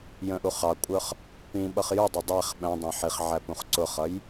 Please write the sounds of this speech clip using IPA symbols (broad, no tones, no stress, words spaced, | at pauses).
jə̃ʔu χɑkʷʼə˞χ | pĩɓʌχ judˤʊ dˤæχ ɓæ̃dˤæ̃ ħiχʕæ pũχǀʊχʌj